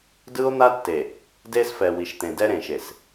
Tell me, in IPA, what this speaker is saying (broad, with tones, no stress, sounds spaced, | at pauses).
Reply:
d ɯ˦ o̯ n̪ a˦ tː e˨ | d e˦ s f ɛ˨ w i˨ ʃ t̪ ẽ˨ d ɛ˦ ɾ ẽ˨ ʃ e˨ s